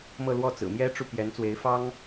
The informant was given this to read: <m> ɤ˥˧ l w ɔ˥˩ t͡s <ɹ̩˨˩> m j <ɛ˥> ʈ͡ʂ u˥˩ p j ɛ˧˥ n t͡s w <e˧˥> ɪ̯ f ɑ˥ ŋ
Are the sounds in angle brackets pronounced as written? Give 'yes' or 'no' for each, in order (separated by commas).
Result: yes, yes, yes, yes